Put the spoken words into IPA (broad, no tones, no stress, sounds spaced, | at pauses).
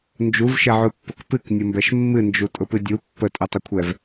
n d͡ʒ u v ʃ ɛ ʕ u pː ʊ k p ɨ k nʲ ʊ m b ɛ ʃ mː ɨ n d͡ʒ u tʼ ʊ p ɨ dʲ u pː ə tʼ u tˤ ʊ kʷʰ ɛ v